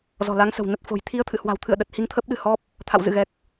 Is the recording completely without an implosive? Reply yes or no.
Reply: no